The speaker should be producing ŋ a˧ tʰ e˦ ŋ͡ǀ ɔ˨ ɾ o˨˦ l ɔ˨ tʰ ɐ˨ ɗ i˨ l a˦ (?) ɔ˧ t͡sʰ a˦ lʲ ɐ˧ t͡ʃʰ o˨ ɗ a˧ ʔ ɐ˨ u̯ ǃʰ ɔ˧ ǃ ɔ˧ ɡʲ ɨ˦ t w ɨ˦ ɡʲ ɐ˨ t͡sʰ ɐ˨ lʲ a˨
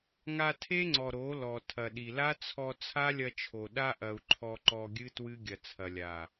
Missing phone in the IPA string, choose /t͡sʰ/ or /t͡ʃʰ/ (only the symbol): t͡sʰ